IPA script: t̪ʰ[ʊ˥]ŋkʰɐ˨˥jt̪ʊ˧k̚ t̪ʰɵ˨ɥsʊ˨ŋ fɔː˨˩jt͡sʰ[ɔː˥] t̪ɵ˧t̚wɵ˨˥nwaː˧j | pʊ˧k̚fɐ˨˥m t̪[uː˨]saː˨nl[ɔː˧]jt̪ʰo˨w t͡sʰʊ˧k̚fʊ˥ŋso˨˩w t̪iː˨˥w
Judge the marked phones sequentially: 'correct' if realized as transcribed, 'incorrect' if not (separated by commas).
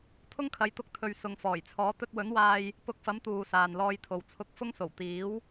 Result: correct, incorrect, correct, correct